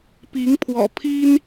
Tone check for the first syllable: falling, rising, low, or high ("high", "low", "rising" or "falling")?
rising